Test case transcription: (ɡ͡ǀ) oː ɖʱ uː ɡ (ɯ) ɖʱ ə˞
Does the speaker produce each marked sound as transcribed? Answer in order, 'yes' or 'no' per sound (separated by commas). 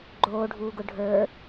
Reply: no, no